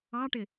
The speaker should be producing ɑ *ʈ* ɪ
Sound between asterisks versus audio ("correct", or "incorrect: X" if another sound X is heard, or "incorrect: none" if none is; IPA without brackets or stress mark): correct